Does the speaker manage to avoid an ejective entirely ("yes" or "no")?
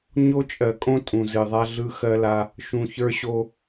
no